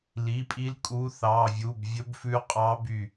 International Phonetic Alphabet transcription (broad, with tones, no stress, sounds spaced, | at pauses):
l i˩˧˩ pʼ i˨˦ l kʼ u˨˦ θ ɑ˩˧˩ vʲ u˩˧˩ b vʲ ɵ˨˦ b f ʉ˨˦ qʼ ɑ˨˦ b y˧˩